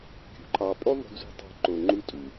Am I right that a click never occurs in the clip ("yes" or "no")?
no